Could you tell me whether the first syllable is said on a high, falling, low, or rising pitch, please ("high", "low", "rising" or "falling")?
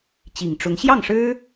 low